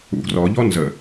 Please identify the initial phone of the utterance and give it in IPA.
ṵ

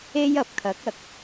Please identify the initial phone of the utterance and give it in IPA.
e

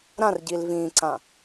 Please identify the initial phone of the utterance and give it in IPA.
ɾ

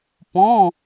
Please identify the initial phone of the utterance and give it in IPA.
p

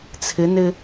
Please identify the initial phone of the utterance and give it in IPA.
t͡sʰ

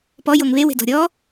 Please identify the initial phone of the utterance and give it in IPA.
p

